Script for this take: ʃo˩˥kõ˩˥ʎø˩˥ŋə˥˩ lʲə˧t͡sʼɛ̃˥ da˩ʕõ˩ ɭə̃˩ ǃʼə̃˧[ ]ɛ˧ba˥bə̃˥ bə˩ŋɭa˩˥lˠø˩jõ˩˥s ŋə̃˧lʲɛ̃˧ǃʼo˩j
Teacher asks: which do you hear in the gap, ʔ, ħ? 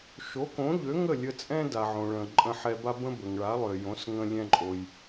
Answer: ħ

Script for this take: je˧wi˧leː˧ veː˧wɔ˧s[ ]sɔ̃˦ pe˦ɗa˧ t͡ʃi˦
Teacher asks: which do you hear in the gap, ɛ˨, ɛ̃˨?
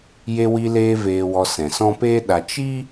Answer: ɛ̃˨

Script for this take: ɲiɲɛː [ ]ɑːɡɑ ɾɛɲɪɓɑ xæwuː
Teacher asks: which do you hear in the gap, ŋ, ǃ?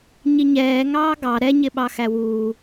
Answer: ŋ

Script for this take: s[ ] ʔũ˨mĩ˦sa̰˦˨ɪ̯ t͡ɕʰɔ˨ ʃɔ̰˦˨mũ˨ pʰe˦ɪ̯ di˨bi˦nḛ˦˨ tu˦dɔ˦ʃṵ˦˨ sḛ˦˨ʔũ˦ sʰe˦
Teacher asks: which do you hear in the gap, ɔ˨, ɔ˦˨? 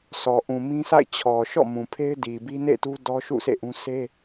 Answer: ɔ˨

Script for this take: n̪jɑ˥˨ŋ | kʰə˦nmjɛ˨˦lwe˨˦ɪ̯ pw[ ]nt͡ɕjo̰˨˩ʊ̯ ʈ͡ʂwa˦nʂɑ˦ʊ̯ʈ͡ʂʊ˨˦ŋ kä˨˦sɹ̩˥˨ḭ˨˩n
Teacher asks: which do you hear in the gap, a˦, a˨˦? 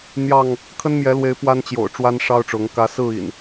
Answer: a˦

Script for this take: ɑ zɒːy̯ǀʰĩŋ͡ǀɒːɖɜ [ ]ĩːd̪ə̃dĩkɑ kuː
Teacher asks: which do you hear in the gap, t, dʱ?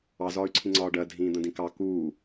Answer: dʱ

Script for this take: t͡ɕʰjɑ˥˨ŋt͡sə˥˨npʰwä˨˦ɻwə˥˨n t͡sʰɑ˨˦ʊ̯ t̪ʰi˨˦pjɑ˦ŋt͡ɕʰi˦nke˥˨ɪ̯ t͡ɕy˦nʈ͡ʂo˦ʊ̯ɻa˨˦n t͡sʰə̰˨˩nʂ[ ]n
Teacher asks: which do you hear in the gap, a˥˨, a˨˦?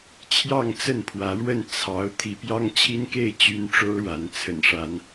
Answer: a˨˦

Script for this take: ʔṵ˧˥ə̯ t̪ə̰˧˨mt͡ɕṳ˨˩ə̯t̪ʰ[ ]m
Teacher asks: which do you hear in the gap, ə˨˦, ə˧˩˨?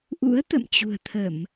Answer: ə˧˩˨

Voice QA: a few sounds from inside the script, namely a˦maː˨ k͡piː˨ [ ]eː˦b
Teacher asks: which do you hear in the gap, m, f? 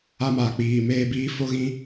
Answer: m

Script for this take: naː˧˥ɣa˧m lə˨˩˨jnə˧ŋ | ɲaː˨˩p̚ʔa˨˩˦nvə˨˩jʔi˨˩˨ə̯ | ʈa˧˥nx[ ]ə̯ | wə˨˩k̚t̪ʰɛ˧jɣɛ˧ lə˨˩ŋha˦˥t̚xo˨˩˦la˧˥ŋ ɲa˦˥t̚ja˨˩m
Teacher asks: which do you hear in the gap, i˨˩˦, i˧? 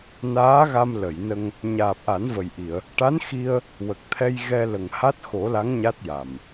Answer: i˧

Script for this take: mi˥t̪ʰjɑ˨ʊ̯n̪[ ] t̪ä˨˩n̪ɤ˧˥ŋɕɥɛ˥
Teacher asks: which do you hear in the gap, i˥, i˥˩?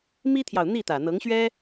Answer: i˥˩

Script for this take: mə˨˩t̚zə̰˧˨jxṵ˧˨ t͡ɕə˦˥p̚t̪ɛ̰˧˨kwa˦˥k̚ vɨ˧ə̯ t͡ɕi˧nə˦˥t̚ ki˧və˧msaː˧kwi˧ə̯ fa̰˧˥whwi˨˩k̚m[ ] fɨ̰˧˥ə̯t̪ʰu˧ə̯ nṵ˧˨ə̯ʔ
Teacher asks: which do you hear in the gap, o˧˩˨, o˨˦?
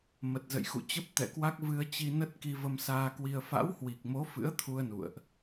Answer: o˨˦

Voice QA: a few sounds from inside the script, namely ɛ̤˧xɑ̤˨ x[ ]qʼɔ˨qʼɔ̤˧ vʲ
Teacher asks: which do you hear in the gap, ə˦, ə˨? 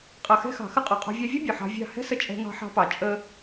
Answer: ə˦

